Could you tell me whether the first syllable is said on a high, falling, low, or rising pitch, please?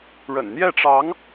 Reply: low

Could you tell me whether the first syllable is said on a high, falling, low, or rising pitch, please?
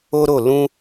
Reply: high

